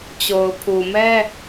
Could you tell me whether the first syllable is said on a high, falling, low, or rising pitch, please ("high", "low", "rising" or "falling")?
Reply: low